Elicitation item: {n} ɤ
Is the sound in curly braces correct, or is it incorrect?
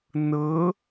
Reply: correct